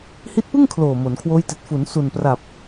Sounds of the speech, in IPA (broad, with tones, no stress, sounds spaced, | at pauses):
h i˦˥ t̚ p ɯ˥˩ ŋ kʰ l oː˨˩ m o˩˦ n kʰ w oː˦˥ j t i˨˩ t̚ f u˩˦ n s u˨˩ n p r a˨˩ p̚